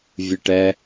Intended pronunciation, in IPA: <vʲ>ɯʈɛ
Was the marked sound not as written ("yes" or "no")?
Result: no